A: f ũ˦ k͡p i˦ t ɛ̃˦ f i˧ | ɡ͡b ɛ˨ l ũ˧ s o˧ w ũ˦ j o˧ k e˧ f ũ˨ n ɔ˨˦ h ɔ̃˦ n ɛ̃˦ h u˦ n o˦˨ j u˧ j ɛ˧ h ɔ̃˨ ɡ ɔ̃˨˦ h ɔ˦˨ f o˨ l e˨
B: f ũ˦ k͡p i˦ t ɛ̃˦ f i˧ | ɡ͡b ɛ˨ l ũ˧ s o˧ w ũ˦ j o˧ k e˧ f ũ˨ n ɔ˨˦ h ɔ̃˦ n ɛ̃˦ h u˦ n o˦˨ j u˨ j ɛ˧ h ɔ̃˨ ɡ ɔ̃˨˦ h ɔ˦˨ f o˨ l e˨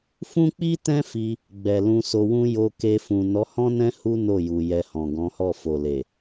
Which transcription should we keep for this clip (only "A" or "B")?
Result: B